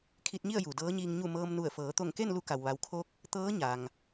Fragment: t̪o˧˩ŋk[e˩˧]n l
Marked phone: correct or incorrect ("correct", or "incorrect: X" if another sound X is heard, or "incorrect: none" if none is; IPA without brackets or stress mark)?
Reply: incorrect: e˥˨